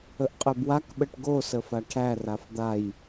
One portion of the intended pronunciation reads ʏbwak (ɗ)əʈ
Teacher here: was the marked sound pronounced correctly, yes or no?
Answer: no